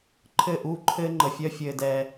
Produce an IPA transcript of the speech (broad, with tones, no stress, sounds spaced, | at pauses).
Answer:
ǃʰ ɘ˦˨ ʔ uː˦ ǃʰ ɘː˦ ŋ͡ǃ ə˨ fʲ œ˦ fʲ ɘː˨ d ɛ˨